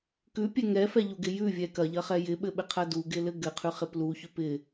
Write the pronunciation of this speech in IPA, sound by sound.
k ʉ pʲ ɛ ŋ ɛ f ɛ ʎ u ɡ ɪ j ʉ vʲ ɛ k ɐ ʎ ɐ χ ɛ j ɪ ɓ ɘ ɓ ɪ qʰ ɐ d u ɡ ɪ l ɘ ɡ ɘ qʰ ʉ χ ɪ p l u ç ʉ p ɪ

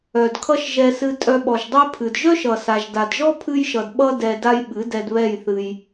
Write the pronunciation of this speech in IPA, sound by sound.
œ˨ d kʰ ʌ˦ ʃ ʒ ɛ˧ s ɨ˧ tʼ œ˧ ɓ ɔ˨ ʒ dˤ ɛ˦ pʰ ɨ˨ d ʒ œ˦ ʃ ʌ˨ s a˨ ʒ d a˨ d ʒ ɔ˦ pʰ ɨ˧ j ʃ ʌ˨ d ɓ ʌ˧ d ɛ˨ d a˦ j ɓ ɨ˨˦ d ɛ˧ d β ɛ˦˨ j θ ɨ˧ j

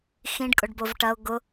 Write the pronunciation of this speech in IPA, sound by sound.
x ĩ ɖ kʼ ʊ ɖ b o v ʈ ɐ ʊ̯ ɡ ʊ

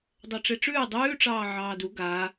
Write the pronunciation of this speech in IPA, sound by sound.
dˤ ɜ ʈ͡ʂ e ʈ͡ʂ ʉː dˤ ʉː ʈ͡ʂ ɑː ʕ ɑː d u ɡ a

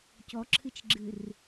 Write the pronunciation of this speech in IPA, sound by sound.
c ɔ ǁʰ ɨ t͡ʃ ɡ͡ǁ ɨ r

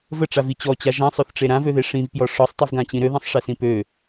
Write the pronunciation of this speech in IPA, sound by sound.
v ə ʈ͡ʂ a v i t͡ɕ ɔ t͡ɕ a ʒ ã sˤ ø θ ʈ͡ʂ e ɾ ã v ø ð e ʂ ĩ v p j ɔ ʂ ɔ sˤ tˤ i v ɡ ã t͡ɕ ĩ ɾ ø ð ẽ sˤ ʂ e s ĩ p ø

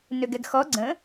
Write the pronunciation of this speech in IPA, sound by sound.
n ø ɡ ɛ ɡ x ɔ ɡ͡ǀ ə̃

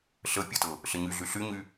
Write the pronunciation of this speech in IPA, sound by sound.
ɬ ə pʲ ə t ɤ | ɬ ə ɲ y ɮ y ɬ y ɲ y

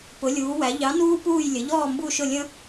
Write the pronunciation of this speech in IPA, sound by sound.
p ʊ˩˧ lʲ uː˩˧ w æ˩˧ ʎ ɑ˨˥ n uː˦ p uː˦˨ j lʲ ə˩˧ ʎ ɔː˦˨ m b u˦˨ ʃ ʊ˦˨ lʲ ə̃˦

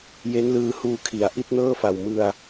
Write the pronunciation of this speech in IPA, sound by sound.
j e˦˥ n l ɯː˧ h uː˧ kʰ i˩˦ a̯ ʔ i˥˩ t̚ n ɤː˥˩ f a˨˩ w m ɯ˧ a̯

